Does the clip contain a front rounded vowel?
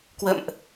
no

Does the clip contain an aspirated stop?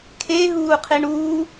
yes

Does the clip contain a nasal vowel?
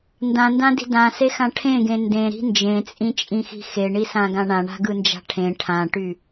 yes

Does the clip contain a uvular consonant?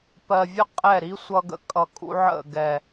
yes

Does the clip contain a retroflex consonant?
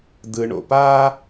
yes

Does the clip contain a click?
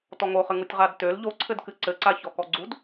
yes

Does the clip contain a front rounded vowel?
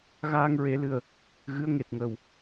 no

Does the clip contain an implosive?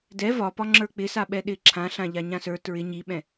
yes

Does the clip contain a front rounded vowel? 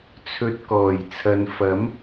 no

